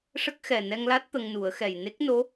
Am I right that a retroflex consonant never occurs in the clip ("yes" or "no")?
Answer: no